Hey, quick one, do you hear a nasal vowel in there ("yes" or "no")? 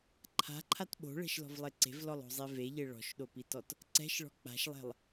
no